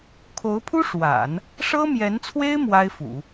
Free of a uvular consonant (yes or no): yes